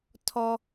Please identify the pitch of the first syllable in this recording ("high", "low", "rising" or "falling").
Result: high